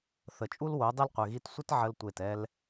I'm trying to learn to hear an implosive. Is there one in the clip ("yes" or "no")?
no